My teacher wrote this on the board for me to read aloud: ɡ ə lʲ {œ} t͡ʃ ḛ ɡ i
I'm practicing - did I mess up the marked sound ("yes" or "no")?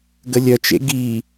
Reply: no